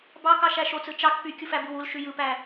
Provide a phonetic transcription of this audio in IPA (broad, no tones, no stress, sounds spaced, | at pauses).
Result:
b ɑ k ɑ ʃ æ ʃ o t͡s ɯ t͡ʃ ɑ k p y kʲ u f æ b ɯ w u l ʃ y j ɯ p æ